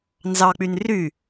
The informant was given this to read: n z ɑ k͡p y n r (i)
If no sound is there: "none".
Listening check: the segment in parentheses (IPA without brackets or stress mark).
y